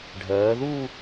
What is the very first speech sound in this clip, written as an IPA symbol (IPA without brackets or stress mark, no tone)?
ɖʱ